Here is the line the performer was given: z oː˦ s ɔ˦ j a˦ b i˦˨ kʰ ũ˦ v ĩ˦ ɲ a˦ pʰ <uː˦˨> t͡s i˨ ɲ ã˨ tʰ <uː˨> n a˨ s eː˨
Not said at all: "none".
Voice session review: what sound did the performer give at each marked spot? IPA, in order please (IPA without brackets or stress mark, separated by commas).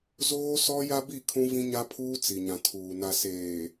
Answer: uː˦, uː˨